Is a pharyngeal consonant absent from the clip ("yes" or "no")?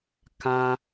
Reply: yes